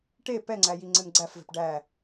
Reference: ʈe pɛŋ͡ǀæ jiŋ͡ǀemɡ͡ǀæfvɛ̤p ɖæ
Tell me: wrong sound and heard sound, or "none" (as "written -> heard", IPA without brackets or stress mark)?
none